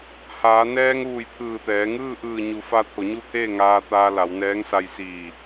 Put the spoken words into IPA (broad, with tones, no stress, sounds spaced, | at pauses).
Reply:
h aː˩˧ n ɛː˧ ŋ ʋ u˧˩ j t̪ʰ ɯː˧˩ t̪ ɛː˩˧ ŋ ɯː˥˨ ʔ ɯː˧˩ ɲ u˩˧ f a˧ t̪ʰ o˩˧ ɲ u˥˨ t̪ʰ eː˥˨ ŋ aː˧ t̪ aː˧ l a˩˧ w n ɛː˧˥ ŋ s a˧ j s iː˧˩